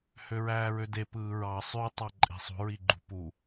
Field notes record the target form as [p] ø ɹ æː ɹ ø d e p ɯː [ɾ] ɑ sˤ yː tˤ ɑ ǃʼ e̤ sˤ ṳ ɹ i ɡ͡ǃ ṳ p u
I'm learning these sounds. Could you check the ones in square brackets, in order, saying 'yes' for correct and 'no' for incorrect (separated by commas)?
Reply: no, no